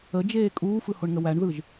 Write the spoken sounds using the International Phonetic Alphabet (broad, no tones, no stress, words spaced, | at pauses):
əd͡ʒeː kʼuːfɯhoɳŋə wæɳðɯʒ